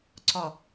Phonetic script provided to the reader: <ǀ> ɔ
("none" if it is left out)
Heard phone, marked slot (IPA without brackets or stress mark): ǀ